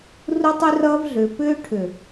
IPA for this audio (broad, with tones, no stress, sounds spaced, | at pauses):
r u˦ tˤ y˦ r ʌː˦ v ɮ ʏː˨ p ʏː˦ ʈʰ ʏ˨